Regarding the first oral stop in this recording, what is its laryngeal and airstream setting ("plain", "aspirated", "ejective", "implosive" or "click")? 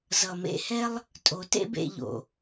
ejective